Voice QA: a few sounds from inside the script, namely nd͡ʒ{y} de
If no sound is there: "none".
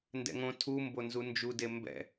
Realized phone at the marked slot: u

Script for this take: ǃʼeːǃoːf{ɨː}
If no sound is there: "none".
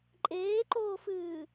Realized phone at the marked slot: ɨː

